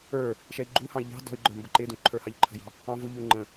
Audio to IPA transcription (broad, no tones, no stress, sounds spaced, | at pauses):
ə˞ | ʃ ɛ i̯ ɡ͡ǃ u h ɑ̃ i̯ ʎ ɑ̤ d ɔ̤ y̯ ɡ͡ǃ ə˞ m b ə ǃ ɪ d ũ ǃʰ ə˞ h ɑ ʎ ǃʰ ə̤ j ɑ̤ | ɑ̃ v ʊ ʎ u ŋ͡ǃ ə̃